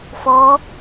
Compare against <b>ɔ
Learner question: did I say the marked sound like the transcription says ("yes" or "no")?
no